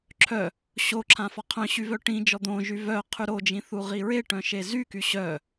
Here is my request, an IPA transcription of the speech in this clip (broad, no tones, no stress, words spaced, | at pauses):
ǁʰœ | ɕoǁʰã fɔqʰœ̃ɕy vœʈĩd͡ʒɔ d̪õʒy vœ qʰyɾod͡ʒĩ θuʁiɹeʈœ̃ ʃezyky ɕœ